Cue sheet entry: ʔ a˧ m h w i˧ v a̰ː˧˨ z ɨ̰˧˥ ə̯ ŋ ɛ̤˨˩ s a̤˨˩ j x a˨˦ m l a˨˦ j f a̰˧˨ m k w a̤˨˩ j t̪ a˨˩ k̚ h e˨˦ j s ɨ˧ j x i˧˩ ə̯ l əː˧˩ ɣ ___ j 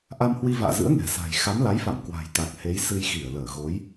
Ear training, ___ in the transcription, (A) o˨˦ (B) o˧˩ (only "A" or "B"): A